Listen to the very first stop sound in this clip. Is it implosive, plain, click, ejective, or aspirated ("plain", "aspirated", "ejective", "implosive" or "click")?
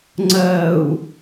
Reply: click